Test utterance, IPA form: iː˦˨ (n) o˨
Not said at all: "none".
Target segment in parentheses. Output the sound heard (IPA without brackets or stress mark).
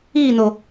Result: n